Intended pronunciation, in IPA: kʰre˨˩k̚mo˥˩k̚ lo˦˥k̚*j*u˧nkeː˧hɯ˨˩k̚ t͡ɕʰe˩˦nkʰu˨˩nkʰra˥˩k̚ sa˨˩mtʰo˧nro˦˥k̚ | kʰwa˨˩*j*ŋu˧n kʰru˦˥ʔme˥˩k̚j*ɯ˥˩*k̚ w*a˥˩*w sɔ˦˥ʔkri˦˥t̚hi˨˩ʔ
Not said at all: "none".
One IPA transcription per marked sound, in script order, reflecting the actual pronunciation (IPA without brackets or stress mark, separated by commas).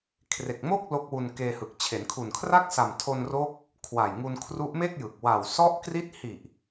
w, j, ɯ˨˩, a˨˩